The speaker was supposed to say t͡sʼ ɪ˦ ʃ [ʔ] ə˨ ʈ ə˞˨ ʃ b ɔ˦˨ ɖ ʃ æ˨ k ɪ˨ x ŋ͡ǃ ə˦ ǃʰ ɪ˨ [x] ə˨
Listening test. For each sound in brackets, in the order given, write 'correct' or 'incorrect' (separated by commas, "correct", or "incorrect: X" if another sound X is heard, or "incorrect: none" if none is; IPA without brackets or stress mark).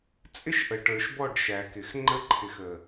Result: correct, correct